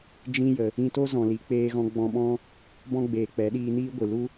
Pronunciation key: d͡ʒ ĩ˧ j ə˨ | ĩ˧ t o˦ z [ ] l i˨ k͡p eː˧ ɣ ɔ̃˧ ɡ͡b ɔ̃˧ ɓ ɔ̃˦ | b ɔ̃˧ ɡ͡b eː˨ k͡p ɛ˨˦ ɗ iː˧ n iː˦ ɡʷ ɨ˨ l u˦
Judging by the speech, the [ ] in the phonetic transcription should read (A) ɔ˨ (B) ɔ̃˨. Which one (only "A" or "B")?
B